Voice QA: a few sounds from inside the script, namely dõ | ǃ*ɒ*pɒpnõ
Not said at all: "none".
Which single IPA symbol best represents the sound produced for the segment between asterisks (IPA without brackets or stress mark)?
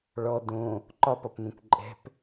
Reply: ɒ